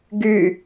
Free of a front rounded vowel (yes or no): no